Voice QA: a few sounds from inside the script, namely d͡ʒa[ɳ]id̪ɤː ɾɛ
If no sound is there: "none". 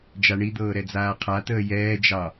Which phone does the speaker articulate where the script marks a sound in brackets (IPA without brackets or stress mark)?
ɳ